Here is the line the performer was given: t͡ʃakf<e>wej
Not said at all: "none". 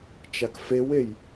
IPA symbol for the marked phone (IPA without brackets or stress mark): e